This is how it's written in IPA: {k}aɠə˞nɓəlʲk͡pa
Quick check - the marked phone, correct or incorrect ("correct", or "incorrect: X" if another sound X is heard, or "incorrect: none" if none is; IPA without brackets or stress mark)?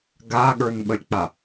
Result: incorrect: ɡ